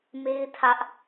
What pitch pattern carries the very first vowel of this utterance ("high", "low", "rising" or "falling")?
high